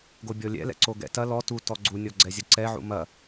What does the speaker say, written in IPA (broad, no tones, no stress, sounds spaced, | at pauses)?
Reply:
ɡ o bʲ ɔ lʲ ɛ̰ l ɛ̰ ǀ o ɡ ɛ̰ t ɐ l ɔ t u t ɔ ɡ͡ǀ u nʲ ɔ ɡ͡ǀ ɛ zʲ ɐ ǀ ɛ ʕ ṵ m ɐ